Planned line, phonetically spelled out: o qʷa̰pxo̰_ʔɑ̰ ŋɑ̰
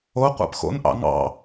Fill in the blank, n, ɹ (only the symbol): n